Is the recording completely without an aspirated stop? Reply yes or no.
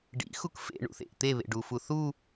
yes